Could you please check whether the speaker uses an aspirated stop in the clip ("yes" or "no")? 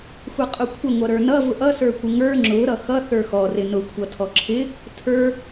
yes